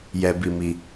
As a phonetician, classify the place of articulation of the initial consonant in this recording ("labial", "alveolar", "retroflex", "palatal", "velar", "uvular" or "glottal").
palatal